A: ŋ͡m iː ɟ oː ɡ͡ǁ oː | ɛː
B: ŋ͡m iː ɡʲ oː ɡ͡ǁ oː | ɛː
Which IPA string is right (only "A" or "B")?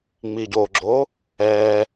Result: A